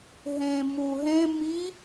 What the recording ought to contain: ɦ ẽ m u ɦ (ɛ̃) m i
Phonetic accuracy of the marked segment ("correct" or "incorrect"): incorrect